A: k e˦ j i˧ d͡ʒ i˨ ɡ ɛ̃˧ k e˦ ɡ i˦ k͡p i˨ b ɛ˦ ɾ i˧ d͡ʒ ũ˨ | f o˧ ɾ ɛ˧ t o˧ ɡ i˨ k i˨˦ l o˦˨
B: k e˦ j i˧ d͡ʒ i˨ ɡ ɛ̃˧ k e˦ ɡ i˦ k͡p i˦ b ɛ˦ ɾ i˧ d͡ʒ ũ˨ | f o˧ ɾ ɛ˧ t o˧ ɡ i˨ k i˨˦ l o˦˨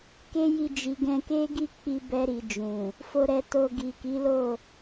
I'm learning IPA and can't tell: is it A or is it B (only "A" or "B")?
B